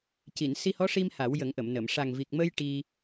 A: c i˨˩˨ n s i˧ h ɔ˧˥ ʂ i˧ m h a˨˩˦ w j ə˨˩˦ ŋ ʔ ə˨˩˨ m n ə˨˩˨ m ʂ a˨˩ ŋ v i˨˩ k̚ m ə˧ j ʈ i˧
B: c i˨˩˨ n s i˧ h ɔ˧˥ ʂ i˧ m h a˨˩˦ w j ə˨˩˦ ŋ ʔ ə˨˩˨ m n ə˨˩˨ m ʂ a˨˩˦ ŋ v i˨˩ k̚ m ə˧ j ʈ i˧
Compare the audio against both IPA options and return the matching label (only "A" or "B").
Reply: A